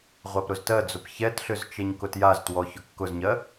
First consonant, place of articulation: uvular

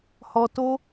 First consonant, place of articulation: glottal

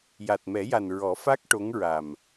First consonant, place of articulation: palatal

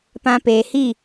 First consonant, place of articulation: labial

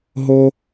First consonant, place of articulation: glottal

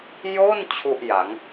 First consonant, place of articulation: palatal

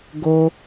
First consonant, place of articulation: velar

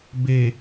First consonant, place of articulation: labial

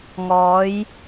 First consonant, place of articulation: velar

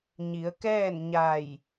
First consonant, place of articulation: palatal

